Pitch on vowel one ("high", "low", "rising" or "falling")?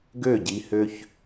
falling